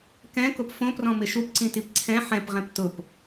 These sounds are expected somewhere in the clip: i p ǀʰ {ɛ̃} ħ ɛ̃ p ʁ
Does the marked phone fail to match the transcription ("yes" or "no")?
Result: no